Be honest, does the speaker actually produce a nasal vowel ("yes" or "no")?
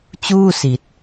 no